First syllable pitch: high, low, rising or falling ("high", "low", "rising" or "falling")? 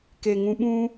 low